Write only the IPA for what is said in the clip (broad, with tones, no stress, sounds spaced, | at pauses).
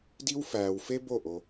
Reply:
d i˥ w f æː˧ w f e˥ b o˥˩ ʔ o˧